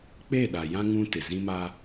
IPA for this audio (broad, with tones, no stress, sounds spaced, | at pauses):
k͡p e˦˨ ɗ a˨ j ã˦ ŋ ũ˦ t ɪ˨ z ĩ˦ m a˦